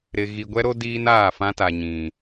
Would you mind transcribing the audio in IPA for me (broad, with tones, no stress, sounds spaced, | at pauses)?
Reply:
ɾ ɪ˨ ɣ i˨ ɡʷ ɛ˦ ɾ o˦ d iː˦ n aː˦˨ f ã˦ t a˨ ɲ ĩ˨